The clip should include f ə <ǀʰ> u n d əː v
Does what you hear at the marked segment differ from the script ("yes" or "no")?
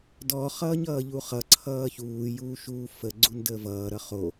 yes